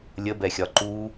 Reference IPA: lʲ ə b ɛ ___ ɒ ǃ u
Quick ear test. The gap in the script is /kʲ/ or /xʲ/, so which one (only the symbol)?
xʲ